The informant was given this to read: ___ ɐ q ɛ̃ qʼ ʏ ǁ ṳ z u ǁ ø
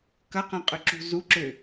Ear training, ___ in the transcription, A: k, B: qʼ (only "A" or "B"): A